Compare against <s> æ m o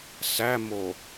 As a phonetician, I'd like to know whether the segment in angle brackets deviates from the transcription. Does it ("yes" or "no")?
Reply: no